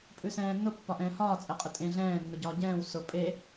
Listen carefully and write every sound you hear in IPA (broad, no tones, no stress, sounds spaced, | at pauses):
pʼ ʉ s ɛ̃ː nː ʊ pː ɒ ʔ ɛ̃ː h ɒː t͡sʼ ɛ qʼ ʊ tʼ ẽ ɮ ɛ̃ː nː ʊ ɟ ɒː ɟ ɛ̃ː w s ʊ pʼ e